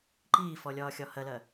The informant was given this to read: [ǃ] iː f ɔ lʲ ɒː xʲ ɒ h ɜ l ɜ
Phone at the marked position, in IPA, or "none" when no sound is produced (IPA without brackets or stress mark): ǃ